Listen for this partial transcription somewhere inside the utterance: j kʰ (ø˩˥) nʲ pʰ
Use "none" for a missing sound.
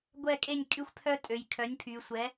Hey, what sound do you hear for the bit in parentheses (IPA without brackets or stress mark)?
œ˩˥